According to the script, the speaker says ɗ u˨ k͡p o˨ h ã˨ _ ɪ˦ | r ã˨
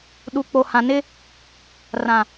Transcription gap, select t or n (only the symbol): n